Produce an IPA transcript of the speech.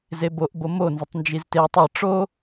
z e b o ʔ b o m o n z ə tˤ n d͡ʒ i z t e tˤ ɐ ʈ͡ʂ o

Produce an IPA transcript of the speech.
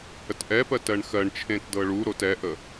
h ə t ʔ ɛ p ɜ t ɜ ɳ x ɜ ɳ t͡ʃʰ ẽ t d ɤ ɭ u ɾ o t ɛ ʔ ə

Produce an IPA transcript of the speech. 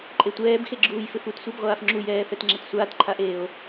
ǃʼ e tʷ ɛː b x e ɡ͡ǁ uː j f ɪ f u t sʷ i b ʁʷ aː f ŋ͡ǁ u j ɛː f ɛ t ŋ͡ǁ ɛ t sʷ aː t ǃʰ a ʔ eː o̯

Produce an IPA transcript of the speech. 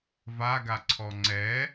v a ɡ a ǀʰ ɔ ŋ͡ǀ ɛ

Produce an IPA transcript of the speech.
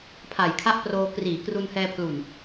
pʰ a˨˩ j kʰ a˥˩ ʔ p r oː˧ k r iː˩˦ k r u˧ n h ɛː˧ pʰ l u˨˩ n

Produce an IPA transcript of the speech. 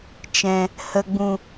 t͡ʃ ɛ̃˨ | h ə˨ ɡ͡b ũ˨

